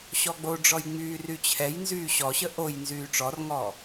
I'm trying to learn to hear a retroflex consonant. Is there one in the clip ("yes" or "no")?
yes